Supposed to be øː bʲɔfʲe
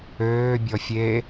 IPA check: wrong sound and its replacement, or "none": none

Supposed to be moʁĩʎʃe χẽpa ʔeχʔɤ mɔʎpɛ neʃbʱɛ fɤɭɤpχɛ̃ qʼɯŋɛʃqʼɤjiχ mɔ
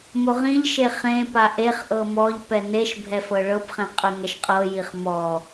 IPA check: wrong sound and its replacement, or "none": none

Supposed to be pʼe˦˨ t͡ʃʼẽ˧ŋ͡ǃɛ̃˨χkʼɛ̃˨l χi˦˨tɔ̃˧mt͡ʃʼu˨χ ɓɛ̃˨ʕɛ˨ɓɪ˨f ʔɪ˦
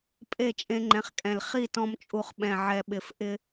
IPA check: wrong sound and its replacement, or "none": none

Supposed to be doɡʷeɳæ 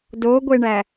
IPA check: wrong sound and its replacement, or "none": none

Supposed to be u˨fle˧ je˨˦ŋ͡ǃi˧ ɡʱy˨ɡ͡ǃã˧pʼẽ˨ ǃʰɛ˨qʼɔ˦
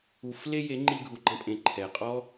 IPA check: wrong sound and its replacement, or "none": y˨ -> u˨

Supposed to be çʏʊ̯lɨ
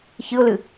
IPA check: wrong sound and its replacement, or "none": ʏ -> ɨ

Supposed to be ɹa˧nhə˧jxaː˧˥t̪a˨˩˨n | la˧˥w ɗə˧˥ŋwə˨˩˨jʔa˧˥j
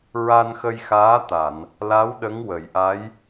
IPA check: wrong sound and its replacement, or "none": h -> x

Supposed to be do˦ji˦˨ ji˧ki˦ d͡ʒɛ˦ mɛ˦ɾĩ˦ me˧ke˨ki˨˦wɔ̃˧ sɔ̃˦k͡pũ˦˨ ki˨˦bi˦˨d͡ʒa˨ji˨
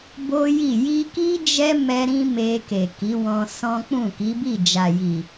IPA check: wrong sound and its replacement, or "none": d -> b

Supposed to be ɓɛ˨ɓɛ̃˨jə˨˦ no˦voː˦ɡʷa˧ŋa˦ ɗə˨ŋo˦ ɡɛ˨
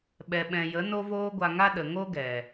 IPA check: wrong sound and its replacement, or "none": none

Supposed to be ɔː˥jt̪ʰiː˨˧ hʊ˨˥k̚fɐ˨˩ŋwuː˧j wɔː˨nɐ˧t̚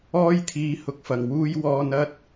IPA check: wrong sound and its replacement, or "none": none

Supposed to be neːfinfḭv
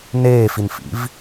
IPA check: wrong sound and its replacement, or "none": none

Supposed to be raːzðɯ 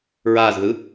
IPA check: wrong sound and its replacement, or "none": r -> ɹ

